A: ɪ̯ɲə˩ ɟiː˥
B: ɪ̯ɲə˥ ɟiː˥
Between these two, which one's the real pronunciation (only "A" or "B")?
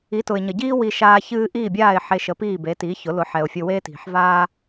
A